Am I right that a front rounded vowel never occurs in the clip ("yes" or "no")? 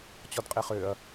no